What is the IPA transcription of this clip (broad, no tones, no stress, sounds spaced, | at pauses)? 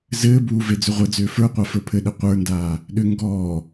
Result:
z ɘː b uː v e d͡z ʏ ʁʷ ɘ d͡z ʏː f ə˞ qʷ a f ə˞ pʰ ɘ ɗ ɘ qʷ ə˞ n d aː | ɗ ʏ ŋ ɡ ɔː